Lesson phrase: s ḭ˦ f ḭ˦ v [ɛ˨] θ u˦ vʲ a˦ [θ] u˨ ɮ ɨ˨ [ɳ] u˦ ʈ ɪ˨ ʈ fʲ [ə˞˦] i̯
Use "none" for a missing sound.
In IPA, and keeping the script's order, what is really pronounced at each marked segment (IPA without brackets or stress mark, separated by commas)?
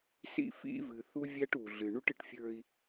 ɨ˨, ʈ, ɳ, ə˞˦